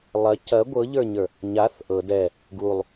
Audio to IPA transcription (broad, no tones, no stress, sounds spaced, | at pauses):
lˠ ɐ c ɐ ɡʷ ɤ ʎ ə˞ ɲ ə˞ | ɲ a θ ʔ ɤ d ɛ | ɡ u lˠ